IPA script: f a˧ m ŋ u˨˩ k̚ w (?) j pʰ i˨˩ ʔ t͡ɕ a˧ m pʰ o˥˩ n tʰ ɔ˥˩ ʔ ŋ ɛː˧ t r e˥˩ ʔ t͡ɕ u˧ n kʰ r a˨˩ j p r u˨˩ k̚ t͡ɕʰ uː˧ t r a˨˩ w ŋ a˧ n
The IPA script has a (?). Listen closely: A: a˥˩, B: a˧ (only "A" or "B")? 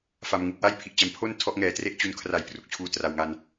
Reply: A